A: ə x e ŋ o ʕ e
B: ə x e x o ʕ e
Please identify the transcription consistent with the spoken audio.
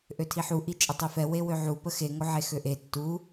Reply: A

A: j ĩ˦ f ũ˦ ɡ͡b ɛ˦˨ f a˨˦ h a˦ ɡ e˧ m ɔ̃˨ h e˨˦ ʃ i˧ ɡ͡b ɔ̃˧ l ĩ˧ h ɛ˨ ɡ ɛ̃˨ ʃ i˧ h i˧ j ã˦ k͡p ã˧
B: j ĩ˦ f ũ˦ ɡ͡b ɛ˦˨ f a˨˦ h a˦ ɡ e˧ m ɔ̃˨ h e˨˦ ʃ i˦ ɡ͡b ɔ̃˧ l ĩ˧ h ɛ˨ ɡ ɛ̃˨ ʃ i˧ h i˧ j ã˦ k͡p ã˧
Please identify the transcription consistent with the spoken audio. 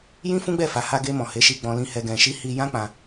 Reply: A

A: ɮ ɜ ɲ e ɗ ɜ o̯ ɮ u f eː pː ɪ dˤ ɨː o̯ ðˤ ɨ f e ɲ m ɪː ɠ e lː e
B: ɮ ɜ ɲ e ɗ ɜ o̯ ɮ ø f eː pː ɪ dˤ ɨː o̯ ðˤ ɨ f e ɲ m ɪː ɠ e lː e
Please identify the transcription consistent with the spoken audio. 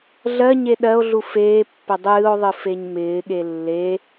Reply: A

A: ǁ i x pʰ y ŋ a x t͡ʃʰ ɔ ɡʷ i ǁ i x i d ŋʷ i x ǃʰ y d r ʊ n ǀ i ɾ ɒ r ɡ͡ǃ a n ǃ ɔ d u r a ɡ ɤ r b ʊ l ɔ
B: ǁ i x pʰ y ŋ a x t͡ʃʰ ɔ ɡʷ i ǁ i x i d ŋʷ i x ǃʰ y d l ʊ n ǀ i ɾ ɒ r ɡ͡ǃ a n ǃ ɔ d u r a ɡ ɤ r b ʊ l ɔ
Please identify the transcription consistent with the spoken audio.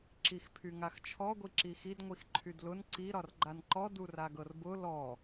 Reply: B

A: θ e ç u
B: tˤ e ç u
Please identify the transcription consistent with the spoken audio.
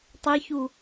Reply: B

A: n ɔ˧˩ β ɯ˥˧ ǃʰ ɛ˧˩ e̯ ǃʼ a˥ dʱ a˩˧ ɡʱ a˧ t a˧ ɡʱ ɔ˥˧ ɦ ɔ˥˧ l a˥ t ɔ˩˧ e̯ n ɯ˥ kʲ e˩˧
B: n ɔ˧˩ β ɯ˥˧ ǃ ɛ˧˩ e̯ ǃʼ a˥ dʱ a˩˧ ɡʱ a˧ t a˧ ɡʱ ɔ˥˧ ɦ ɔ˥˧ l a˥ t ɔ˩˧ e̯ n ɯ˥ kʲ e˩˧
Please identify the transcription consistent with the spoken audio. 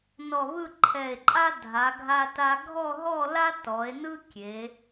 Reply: A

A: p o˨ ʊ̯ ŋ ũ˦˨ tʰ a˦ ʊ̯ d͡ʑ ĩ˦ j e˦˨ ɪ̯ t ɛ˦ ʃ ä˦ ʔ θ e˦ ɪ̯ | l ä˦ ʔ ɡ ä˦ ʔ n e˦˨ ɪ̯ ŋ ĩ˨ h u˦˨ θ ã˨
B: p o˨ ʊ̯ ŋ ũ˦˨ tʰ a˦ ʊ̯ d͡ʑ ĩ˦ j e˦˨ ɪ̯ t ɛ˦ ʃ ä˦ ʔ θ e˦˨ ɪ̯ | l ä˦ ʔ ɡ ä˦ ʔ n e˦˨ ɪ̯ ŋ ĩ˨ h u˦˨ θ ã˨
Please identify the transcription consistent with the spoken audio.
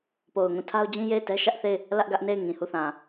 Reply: B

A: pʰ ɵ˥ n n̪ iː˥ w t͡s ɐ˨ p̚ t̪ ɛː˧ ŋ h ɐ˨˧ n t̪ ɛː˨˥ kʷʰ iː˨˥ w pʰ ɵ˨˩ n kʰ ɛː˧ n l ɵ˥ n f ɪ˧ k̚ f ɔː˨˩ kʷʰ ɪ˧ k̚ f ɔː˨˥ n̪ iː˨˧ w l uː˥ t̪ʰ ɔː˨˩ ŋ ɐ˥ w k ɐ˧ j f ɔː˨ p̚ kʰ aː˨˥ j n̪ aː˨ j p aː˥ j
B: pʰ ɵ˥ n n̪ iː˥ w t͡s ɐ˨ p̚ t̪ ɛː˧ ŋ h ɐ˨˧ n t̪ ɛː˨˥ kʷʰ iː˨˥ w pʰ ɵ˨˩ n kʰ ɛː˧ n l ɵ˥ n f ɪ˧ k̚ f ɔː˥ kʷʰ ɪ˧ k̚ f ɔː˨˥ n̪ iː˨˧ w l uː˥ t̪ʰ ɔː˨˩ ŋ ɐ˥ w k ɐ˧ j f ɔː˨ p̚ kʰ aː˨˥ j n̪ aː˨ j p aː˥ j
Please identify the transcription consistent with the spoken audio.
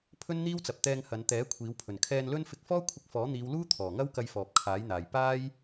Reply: B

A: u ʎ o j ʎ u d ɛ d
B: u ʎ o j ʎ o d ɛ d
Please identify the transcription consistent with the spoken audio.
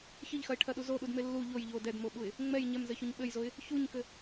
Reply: B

